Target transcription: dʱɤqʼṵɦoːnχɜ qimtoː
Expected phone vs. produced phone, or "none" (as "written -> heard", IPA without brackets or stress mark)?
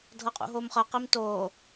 n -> m